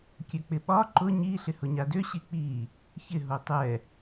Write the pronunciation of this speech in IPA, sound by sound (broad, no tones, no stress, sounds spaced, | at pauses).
kʲ ø k͡p ɪ ɓ ɒ ǃ ʊ ɲ i ɬ ɪ h ʊ ɲ a d ø ɕ i k͡p i | ç ɪ ɦ o tˤ ɛ